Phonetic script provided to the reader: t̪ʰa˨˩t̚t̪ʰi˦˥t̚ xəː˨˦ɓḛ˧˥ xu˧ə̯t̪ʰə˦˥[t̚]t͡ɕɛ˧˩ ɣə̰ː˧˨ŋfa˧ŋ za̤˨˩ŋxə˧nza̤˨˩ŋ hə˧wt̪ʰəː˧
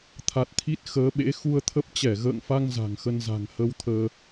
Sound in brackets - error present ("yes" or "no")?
yes